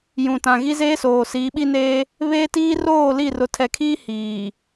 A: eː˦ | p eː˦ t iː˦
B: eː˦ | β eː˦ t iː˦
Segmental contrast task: B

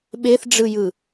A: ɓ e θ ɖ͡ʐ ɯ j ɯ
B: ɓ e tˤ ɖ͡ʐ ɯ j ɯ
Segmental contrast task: A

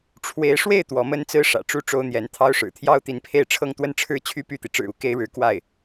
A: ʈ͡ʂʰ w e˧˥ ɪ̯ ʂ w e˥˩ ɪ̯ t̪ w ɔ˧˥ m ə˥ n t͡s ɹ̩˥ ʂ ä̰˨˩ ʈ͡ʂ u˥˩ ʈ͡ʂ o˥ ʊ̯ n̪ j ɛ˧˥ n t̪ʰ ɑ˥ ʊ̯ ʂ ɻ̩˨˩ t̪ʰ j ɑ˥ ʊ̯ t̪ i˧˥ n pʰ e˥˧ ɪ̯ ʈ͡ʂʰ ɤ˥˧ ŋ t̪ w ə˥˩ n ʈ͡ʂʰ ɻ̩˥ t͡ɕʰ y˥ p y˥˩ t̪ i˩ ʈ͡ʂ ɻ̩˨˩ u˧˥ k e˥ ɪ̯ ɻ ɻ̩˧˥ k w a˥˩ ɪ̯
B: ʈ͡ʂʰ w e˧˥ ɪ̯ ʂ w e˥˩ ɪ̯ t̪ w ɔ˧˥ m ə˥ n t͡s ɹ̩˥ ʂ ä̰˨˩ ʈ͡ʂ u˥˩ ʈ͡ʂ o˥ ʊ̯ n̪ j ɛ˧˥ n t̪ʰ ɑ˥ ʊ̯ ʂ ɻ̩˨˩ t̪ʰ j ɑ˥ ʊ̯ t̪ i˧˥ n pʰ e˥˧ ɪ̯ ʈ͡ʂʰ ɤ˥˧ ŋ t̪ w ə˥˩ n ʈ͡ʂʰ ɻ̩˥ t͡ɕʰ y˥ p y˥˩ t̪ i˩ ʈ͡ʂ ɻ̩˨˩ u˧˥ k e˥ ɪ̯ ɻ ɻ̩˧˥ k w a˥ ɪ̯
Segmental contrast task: A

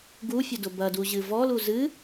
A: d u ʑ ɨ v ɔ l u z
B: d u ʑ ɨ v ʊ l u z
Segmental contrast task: A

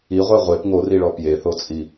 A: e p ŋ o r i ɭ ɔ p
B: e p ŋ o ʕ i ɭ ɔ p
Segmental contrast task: A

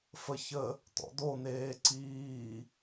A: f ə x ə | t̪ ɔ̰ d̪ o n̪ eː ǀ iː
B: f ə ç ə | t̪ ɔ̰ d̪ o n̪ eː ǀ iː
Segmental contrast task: B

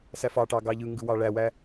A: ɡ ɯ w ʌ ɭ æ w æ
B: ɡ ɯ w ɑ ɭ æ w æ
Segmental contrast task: B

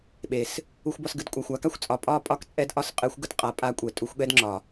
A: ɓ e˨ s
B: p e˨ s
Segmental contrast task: A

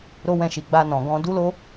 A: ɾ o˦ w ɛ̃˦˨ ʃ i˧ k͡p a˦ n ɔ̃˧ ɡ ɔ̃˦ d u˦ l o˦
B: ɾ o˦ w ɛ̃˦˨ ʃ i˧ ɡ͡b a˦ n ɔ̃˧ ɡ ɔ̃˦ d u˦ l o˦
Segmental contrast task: B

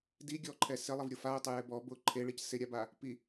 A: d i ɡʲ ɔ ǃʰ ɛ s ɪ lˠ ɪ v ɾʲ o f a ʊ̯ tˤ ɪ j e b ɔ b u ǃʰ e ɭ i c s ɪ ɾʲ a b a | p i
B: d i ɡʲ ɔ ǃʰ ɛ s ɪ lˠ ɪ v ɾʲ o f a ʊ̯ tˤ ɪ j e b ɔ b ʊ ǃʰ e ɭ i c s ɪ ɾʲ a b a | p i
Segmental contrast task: B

